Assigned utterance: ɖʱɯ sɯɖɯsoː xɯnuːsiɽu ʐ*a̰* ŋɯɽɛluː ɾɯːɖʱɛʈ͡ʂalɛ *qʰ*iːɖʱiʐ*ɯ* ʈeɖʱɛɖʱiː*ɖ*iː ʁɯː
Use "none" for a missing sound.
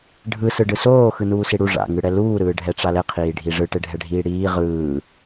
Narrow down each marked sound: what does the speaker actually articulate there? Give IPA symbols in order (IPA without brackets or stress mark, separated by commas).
a̰, qʰ, ɯ, ɽ